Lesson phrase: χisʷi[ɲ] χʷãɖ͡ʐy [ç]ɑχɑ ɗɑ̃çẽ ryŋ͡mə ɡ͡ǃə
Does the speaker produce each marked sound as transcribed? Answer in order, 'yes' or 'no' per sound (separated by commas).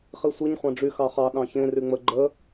yes, no